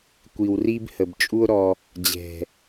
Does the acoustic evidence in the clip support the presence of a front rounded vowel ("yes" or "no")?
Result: no